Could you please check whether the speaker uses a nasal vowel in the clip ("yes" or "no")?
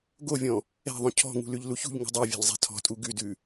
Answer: yes